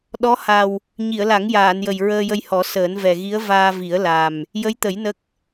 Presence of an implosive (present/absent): present